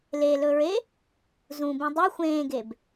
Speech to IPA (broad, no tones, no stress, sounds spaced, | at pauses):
l e l ɵ ɹ e | z ũ b ũ dˤ e xʷ ẽː ɡ e b